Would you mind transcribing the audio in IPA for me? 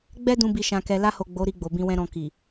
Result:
ɡ͡bɛ˦dũ˧ bi˨ʃã˨kɛ˨ la˧ho˨ ɡ͡bo˨˦ ɾi˧ɡ͡bo˨bĩ˧wɛ̃˧ ɾɔ̃˨ki˨

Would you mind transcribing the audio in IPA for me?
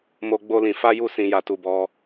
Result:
mo˦ɡ͡bo˦lĩ˧ fa˦ju˦˨ sĩ˧ja˧tu˧bɔ˦

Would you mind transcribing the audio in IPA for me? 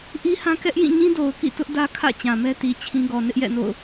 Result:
ʔi˦hã˦ kɛ˦ʔ jĩ˦˨ɲĩ˦do˨ʊ̯kḭ˦˨ tʊ˦ʔdä˦ kʰä̰˦˨t͡ɕã˨mɛ˦ti˨ t͡ɕʰĩ˦ɡɔ˨ nɪ˦ʔjɛ̰˦˨no̰˦˨ʊ̯

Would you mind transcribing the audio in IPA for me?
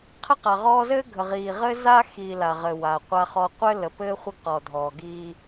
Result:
qʰə˦qa˨ʁɔː˦ zɘː˦ɡʱə˨ʁiː˨ʁɘː˦ za˦xiː˨ la˨ʁɘ˨ wa˨qʷa˦χɔ˦ qʷɘ˦lə˨ pɘː˦ χʷə˦ɡqɔ˨dʱɔː˨ ɡiː˦

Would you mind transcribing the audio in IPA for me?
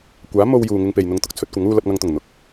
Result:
kʷaː˨˥mo˧wjuː˨ ŋɪ˧ŋpe˨jn̪ʊ˧ŋt̪ʊ˧k̚ t͡sʰɵ˧t̚kʷɐ˨˥ŋuː˧ lɐ˨p̚ŋɐ˨ŋt̪ʊ˨˩ŋ n̪ʊ˨k̚

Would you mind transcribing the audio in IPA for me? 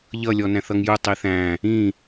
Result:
ʎʌ lʲɔnæ̃θʌŋju tˤiθæ̃ | ĩ

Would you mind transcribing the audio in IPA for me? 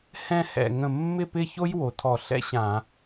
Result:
hɛ̃˥˧hɛ̰˧˩ ŋə̃˧˩mːɪ˥˧pɪ˥˧ço˥j wo˩˧tʰɔ˧˩ɬɛ̰˥ɕã˧˩˧

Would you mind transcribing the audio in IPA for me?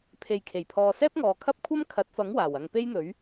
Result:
pʰe˨jkʰe˨˩jpʰɔː˨ sɛː˥p̚ŋɔː˨kʰɐ˥p̚kʷʰɐ˥m kʰɐ˨˥t̚fɐ˨˥ŋwaː˨˩wɐ˨ŋ pe˥jn̪ɵ˨˥ɥ

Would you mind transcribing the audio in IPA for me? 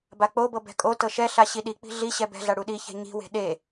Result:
bak͡pobɤ bɛ̤kʼo tɤʃɛɬa ɕiɗik͡pi̤ ɮiɕɛ bɛ̤ɮa ɽuɗiçɛ̤ ɲi̤we̤ ɗe

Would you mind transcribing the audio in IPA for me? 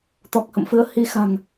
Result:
t̪ɔ˨˩k̚hə̰˧˨mfɨ˨˦ə̯ hi˨˦xa̤˨˩ŋ

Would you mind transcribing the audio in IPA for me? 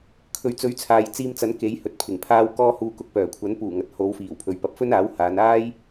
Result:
kʰɵ˨ɥt͡sɵ˨˥ɥt͡sʰaː˨j t͡siː˧mt͡sɐ˨˥n ke˨˥jhɵ˨t̚pʰɪ˨˩ŋpʰaː˥w kɔː˥huː˧ kʊ˨k̚pœː˨˩kʷʰɐ˨˥n puː˨˩ŋɐ˨t̚ho˨˧w fiː˨˩wpʰɵ˨ɥpɐ˨˥p̚ fɵ˥naː˨˥w haː˨˧naː˥j

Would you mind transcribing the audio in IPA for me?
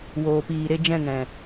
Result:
woː˨piː˨ɾe˧ d͡ʒɛ̃˦˨ŋɛ̃˨

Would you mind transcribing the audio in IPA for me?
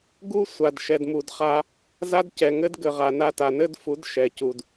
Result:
ɡu˦ sʷa˨dʃɛ˨dmu˨dχa˦ | za˦d cɛ˨ŋɘ˦d ɡɘ˨ʁa˨na˧ ta˨nɘ˦dfu˨˦d ʃɛ˨cu˨d

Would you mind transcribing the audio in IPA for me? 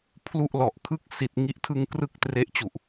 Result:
pʰlu˥˩ʔlɔ˨˩ʔkʰɯ˥˩k̚ si˨˩t̚ŋi˦˥ʔtʰɯ˧ŋ krɯ˥˩k̚tre˦˥ʔt͡ɕu˨˩ʔ

